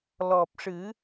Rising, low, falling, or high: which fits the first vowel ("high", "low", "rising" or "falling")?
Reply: low